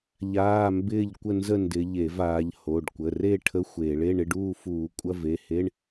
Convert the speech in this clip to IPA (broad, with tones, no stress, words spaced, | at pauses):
ʎaː˧˥˧mbɪː˥˨ʎkʷə˥˨nzə˥˨ ndɪ˨˦ʎe˧˩˧v aː˨˦ʎ ho˩˧˩ɖkʷə˩˧˩re˥˨ ʈʰə˧˥˧xʷeː˧˩˧ɭe˧˥˧ ɳɪ˧˥˧ɖuː˥˨ fuː˧˩˧kʷʼɐ˧˥˧ve˩˧˩he˧˥˧ɳ